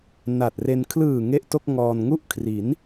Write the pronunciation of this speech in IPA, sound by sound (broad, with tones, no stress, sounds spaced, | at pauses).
n a˨˩ t̚ r e˧ n kʰ l ɯː˨˩ ŋ e˥˩ ʔ t o˥˩ k̚ ŋ ɔː˧ n ŋ u˥˩ ʔ kʰ r i˩˦ n